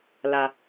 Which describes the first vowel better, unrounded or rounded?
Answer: unrounded